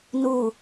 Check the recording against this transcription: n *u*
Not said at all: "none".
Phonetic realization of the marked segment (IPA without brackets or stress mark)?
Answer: u